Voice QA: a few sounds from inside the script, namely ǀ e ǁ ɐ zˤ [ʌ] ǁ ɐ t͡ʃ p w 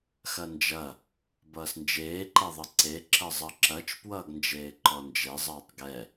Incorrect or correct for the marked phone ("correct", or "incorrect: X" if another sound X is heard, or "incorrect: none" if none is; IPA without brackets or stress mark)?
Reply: correct